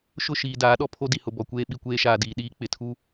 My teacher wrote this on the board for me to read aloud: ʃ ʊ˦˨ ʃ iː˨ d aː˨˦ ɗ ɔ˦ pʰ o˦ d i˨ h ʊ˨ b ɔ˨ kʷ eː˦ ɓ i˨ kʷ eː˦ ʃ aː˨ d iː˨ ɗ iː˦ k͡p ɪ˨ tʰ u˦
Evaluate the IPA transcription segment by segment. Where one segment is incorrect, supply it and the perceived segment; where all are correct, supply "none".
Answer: none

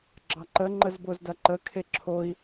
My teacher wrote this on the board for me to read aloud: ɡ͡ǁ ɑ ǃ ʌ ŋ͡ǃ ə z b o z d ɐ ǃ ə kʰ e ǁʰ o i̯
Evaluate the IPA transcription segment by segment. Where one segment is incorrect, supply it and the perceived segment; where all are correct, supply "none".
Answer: ʌ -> ə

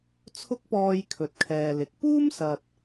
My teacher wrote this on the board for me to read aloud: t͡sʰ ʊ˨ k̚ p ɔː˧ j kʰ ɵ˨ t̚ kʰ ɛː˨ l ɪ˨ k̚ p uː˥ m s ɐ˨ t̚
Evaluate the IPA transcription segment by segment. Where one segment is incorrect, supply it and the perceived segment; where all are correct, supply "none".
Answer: ʊ˨ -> ʊ˥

